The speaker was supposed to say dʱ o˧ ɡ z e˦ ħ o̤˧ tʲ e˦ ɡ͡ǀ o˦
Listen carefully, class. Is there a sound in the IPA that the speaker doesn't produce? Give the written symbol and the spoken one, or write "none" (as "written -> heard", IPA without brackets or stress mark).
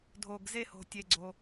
ħ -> h